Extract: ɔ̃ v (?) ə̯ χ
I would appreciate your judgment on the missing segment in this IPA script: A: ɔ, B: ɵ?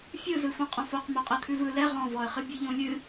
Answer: A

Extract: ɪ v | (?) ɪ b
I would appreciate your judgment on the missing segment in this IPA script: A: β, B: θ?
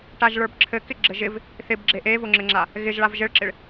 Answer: B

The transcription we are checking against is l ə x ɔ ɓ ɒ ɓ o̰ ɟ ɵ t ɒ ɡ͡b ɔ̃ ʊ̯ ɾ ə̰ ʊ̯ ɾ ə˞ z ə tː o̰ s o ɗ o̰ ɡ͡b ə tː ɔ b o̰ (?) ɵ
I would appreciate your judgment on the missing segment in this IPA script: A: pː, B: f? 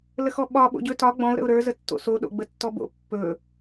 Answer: A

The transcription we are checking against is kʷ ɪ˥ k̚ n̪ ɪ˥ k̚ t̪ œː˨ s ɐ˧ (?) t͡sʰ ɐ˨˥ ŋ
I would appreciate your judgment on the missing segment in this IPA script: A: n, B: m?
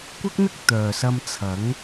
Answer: B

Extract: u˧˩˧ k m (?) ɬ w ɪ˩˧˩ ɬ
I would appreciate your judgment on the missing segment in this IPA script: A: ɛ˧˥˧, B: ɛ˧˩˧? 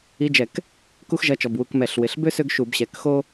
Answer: B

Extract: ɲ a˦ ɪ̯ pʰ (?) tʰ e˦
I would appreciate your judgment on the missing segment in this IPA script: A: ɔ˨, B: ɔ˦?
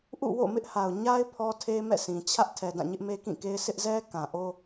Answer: B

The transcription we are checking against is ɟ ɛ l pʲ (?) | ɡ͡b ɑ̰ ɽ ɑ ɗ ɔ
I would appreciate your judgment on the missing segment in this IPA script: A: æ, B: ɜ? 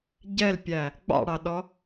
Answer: A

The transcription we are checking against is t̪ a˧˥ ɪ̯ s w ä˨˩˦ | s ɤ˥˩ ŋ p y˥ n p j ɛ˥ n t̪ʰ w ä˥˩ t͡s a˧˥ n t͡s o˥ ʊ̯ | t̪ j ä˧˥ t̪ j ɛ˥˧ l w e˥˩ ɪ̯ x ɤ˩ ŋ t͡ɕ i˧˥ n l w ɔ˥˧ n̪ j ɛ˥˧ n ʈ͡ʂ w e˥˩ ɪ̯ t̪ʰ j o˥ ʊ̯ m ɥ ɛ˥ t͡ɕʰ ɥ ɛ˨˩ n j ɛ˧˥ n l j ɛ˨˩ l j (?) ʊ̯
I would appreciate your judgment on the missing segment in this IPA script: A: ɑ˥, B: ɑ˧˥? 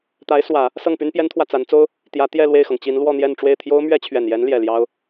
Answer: A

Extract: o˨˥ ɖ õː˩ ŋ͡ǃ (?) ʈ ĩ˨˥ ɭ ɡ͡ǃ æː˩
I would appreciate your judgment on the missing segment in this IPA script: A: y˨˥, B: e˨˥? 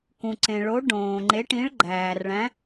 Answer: B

